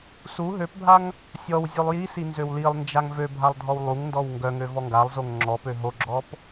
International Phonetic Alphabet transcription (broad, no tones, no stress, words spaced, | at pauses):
su ɦøpbʱaŋ | sʲɔw zʲølˠjisi nzøwlilˠnd͡ʒaŋ vø bʱalˠdʱɔwlˠuŋndɔw ŋɡœŋø vɔŋɡalˠzoŋ ŋ͡ǁɔpø ɦoɡ͡ǁɔp